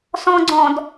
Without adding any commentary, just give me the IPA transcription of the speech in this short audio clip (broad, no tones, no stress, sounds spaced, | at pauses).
s ɔ̃ ɡ͡ǀ ɔ̃ d